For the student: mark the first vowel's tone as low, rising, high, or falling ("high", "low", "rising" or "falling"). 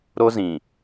high